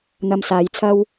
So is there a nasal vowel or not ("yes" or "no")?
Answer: no